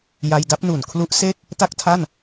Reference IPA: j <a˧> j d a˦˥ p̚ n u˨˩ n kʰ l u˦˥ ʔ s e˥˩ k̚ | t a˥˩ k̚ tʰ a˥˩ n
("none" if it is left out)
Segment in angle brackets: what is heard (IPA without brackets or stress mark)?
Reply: a˧